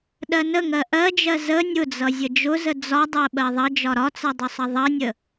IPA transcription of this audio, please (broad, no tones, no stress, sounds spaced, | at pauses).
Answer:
ɗ ɜ n ə ŋ ɜ ʔ ɜ d͡ʒ ɜ z ə nʲ ʊ d͡z ʌ zʲ ə d͡ʒ ʊ z ə d͡z ɒ dˤ ɜ ɓ ɜ ðˤ ʌ d͡ʒ ɒ ɾ ɒ t͡s ʌ dˤ u sˤ ʌ ðˤ ʌ nʲ ə